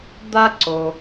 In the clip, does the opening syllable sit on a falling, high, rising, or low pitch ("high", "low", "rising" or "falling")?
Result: high